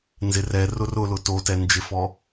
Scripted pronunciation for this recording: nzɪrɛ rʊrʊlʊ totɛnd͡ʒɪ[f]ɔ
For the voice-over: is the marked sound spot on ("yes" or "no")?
yes